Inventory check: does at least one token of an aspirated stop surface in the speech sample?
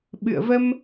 no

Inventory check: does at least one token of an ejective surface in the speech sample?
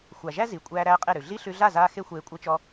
yes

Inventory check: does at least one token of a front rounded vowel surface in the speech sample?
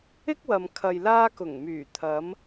yes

